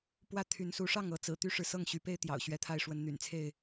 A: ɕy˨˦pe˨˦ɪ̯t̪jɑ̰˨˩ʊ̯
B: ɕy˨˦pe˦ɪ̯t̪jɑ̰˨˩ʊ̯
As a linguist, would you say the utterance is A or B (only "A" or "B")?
B